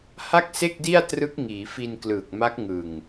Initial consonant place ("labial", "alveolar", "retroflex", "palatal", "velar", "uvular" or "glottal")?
glottal